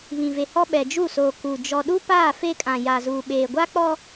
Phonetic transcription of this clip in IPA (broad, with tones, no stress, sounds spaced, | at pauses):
β ĩ˨ v e˨ h ɔ˦ ɓ ɛ˨ d͡ʒ u˦˨ s oː˨ k u˨ d͡ʒ ɔ˨ ɗ u˦ p aː˦˨ f e˦ kʼ ã˨ j a˨ z uː˨ ɓ eː˨ ɡʷ a˦ k͡p ɔ˦